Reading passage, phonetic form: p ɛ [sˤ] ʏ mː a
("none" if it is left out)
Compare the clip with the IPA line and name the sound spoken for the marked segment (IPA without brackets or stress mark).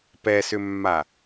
s